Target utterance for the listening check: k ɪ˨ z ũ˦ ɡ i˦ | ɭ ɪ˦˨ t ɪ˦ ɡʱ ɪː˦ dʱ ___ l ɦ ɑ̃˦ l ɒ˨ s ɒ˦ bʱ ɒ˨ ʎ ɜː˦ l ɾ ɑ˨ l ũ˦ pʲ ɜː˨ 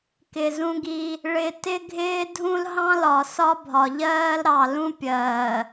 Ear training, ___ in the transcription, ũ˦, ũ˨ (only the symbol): ũ˦